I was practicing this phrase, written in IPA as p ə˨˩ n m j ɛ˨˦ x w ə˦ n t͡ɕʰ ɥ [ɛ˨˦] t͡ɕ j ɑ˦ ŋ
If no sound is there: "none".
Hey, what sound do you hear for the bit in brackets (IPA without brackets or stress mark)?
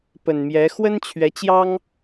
ɛ˨˦